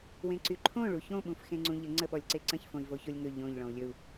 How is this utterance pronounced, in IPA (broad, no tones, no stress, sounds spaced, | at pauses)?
w ẽ ǀ y ǃʰ õ ɭ u ç õ ɓ ũ f x ẽ ŋ͡ǀ ũ ʎ ə ŋ͡ǀ ə ɓ ɔ lʲ ǀ e ǀ ə̃ ç f õ i̯ v o ç o lʲ ŋ ɵ ʎ õ ʎ ɭ ɔ̃ u̯ lʲ ɵ u̯